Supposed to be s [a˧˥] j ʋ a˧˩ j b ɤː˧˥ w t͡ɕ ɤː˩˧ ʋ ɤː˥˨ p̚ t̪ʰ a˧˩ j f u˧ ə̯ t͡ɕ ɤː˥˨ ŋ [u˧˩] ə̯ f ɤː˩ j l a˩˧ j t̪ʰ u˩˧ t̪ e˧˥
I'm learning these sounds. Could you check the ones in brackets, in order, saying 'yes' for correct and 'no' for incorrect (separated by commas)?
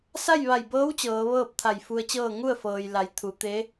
no, no